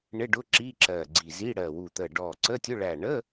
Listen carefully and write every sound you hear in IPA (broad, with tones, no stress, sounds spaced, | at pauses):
ɳ ɪ˧˥˧ ɖ ʊ˧˥˧ ǁ i˧˥˧ ǁ ɜ˧˩ ɡ͡ǀ i˧˩ z i˧˥˧ ɽ ɜ˧˩ w u˧˩ t̪ ə˧˩ ɖ ɔ˧˩ ǀ ə˧˥˧ tʲ ʊ˧˥˧ ɭ æ˧˩ ɳ ə˧˥˧